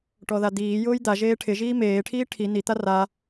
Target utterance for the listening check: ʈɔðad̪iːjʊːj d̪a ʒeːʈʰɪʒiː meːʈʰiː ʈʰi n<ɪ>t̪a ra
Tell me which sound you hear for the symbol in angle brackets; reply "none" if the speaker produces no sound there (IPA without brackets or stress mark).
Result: i